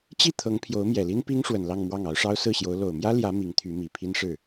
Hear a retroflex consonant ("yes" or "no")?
yes